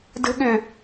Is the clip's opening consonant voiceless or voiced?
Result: voiced